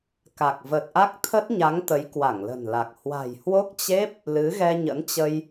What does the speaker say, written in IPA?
ka˨˩k̚və˨˩t̚ʔa˦˥k̚ t̪ʰə˦˥t̚ɲa˨˦ŋ t̪ə˨˦jkwa˧˩ŋlə̤˨˩nla˨˩k̚ hwa̤˨˩jhwo˦˥k̚t͡ɕe˦˥p̚ | lɨ˨˦ɣɛ˧ɲə̰˧˥nt͡ɕə˧j

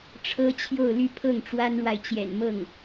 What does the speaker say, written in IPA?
ʈ͡ʂʰɤ˥t͡ɕʰjo˥˧ʊ̯ly˥˧pʰɤ˥˩ŋ ʈ͡ʂwa˥nɻwa˨ɪ̯t͡ɕjɛ̰˨˩nmɤ˥˩ŋ

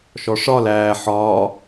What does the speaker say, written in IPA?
ʃɔʂɒl æː ħɒː

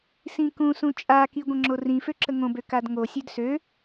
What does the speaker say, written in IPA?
sĩkũsũ t͡ʃʼaki ɡʷə̃ŋ͡ǁorĩfø ǁəŋõbø kadŋosʲød sø

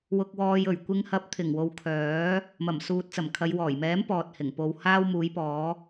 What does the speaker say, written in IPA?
wʊ˧k̚wɔː˧j ɵ˨˩ɥkʷɪ˧ŋ hɐ˨˥p̚t̪ʰɪ˨˩ŋwo˨w kʰœː˨˥ | mɐ˨˩msuː˨t̚t͡sɐ˨˩mkʰɐ˨˧j wɔː˨˩jmɛː˨˥m pɔː˨t̚hɪ˨˩ŋpo˧w haː˥wmuː˨˥jpɔː˨˥

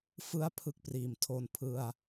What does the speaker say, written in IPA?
fɯ˥˩a̯ pʰɯ˦˥k̚priː˩˦mtʰo˧n pʰɯ˧a̯

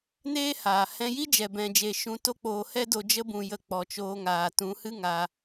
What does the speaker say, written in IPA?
neː˦haː˨ hɛ̃˧ji˦ d͡ʒɛ˨bɛ̃˨d͡ʒe˨ ʃũ˧to˦k͡poː˧ hɛ˦do˧ d͡ʒə˧bũ˨jə˨ k͡pɔ˨t͡ʃoː˧ŋaː˨ tũ˨˦hɨ˦ŋa˧

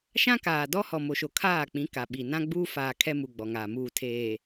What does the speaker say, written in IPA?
ʃã˦kaː˨dɔ˦ hɔ˨mo˨ʃo˨ kʰaː˦˨k͡pĩ˨˦ ka˨ɓi˨ nã˦ɡ͡buː˦faː˨ kʰɛ˦mu˨ɡ͡bɔ˨ŋaː˨ muː˨tʰeː˨

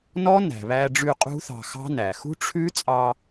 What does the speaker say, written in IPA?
nɔ˦˥næ̤˩βæ˧ɖ͡ʐʉ˧ qʼṳ˦˥θɑ̤˧xɑ̤˦˥næ˩ xṳ˦˥ʈ͡ʂʰʉ˦˥t͡sʼɑ˧

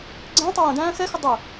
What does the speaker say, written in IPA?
ɡ͡ǀæ̃ tˤʌjə̃dæ̃ː xɛxɪ dˤɪ

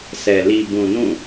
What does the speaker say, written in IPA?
sʰɛ˨ li˨bũ˨ nũ˦˨

